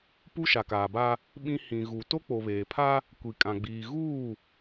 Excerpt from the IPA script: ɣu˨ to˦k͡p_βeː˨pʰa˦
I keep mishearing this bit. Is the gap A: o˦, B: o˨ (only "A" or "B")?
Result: B